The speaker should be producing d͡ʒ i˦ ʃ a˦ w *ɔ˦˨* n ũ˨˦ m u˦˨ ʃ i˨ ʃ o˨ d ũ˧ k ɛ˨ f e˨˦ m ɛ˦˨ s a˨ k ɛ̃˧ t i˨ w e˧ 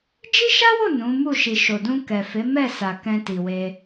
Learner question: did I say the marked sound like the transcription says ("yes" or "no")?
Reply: no